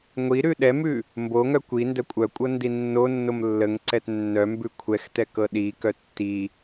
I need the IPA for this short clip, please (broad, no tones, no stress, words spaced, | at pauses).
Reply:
ŋʷi ɾʉɗɛmʉ | mboŋœ kʷi ndœkʷʼœkʷʼɤ ndinːonːom lːəŋǀɛt nːœmbʉ kʷʰɛxtɛ kɤɗikœ tːi